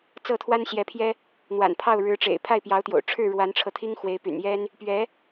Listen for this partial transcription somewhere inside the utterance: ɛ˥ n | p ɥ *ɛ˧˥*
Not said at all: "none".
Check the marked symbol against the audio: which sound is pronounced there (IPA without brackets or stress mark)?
ɛ˧˥